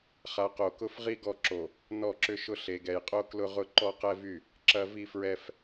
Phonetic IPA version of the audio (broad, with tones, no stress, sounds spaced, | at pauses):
χ a˨ q o˨ k ʊ˦ f ʁ i˦ ɡ ɔ˦˨ ǁ o˨ | n ɔ˦˨ ǁ ʏ˦ ʃ ʊ˦ ɬ e˨ ɡ ɛ˨ j qʼ o˦ k l ʊ˦ ʁ ʊ˦ ǃ ɔ˦ q ɛ˦ v y˦˨ | ǁ ɐ˦ v i˦ f ɹ ɛ˦ f